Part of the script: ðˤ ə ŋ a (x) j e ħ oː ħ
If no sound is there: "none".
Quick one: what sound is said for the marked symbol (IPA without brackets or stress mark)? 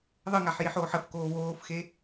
ħ